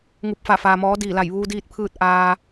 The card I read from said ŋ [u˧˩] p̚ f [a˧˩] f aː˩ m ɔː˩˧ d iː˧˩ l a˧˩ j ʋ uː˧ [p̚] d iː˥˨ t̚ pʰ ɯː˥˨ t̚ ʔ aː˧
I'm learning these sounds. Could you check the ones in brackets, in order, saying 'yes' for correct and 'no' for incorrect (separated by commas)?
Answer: yes, yes, no